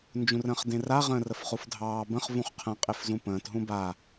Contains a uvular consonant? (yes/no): yes